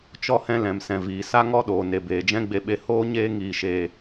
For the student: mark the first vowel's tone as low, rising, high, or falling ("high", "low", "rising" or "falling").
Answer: high